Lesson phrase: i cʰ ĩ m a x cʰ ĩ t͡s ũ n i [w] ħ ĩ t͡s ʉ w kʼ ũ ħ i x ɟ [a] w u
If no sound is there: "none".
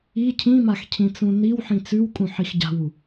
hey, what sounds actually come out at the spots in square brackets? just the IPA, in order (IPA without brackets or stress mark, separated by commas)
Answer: w, a̤